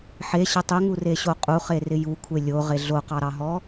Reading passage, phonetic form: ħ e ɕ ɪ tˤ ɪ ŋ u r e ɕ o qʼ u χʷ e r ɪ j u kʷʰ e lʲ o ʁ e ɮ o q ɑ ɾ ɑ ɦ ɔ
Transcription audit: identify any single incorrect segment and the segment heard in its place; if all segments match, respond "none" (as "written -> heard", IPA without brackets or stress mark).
χʷ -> χ